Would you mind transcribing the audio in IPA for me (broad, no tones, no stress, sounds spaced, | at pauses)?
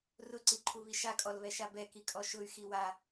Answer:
r ʊ ǀ i ǃʰ u β i ʃ a kʼ ɔ l β ɛ ʃ a b ɛ k i kʼ ɔ ʃ ʊ y̯ x i w a